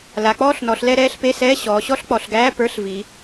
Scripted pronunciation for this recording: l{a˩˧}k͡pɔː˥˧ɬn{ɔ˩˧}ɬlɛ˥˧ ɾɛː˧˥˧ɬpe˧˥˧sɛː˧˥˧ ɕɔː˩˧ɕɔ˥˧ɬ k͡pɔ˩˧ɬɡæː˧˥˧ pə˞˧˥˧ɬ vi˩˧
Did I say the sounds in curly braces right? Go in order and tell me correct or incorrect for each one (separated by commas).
correct, correct